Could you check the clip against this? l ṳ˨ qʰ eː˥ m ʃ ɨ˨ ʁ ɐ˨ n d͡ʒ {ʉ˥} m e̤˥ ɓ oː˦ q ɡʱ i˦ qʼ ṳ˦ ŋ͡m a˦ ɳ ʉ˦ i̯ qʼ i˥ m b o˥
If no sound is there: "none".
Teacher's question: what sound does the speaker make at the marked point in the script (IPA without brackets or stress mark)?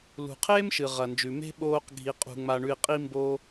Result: ʉ˨